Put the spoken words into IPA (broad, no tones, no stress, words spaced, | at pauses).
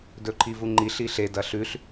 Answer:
dɵǃʰivuŋ͡ǃiɬ iɬe dɐɬʉɬ